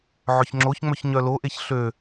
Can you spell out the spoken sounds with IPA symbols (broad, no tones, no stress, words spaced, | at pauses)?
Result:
ʕʏçŋ͡ǁoçŋ͡mœç ɲœloʔeç ɬø